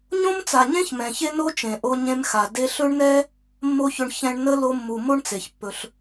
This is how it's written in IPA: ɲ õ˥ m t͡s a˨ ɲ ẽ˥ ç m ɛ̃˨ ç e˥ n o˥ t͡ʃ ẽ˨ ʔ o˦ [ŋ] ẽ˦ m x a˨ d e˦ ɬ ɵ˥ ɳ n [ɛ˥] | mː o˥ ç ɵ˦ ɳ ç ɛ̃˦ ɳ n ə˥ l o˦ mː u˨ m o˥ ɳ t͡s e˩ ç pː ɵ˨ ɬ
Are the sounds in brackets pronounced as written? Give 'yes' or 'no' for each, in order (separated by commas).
no, yes